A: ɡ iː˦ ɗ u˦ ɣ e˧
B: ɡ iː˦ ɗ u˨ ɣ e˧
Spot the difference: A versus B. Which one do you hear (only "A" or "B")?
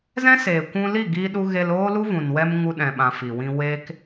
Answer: A